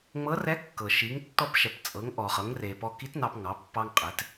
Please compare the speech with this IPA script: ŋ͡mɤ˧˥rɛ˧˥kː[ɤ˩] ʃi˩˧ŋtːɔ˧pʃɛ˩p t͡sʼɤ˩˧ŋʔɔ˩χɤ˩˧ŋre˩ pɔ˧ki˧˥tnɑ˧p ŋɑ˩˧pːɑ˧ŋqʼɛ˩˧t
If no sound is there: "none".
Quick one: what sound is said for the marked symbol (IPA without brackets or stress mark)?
ɤ˩